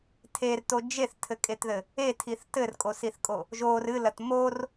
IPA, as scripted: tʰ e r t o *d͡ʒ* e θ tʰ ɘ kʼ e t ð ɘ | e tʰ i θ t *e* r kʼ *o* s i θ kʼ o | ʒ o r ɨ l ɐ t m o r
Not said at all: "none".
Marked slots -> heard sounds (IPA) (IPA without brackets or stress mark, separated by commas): d͡ʒ, ɘ, o